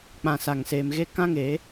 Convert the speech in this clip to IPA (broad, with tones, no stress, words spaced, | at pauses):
k͡pã˧sa˧ŋseː˧mɣe˦ kã˦ŋe˨˦